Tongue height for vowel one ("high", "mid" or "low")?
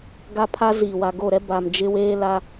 low